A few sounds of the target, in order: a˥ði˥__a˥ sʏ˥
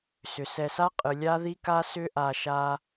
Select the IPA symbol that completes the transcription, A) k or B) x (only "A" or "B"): A